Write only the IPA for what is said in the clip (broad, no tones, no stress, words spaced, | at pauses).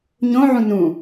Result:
ɲõʕũ nũ